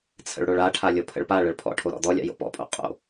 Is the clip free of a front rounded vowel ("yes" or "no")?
yes